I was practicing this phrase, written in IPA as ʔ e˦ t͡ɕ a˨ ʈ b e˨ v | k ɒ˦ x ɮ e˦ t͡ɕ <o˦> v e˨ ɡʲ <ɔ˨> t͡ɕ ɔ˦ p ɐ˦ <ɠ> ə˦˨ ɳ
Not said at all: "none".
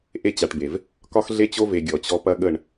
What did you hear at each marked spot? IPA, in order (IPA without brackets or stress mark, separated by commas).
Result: o˦, ɔ˨, ɠ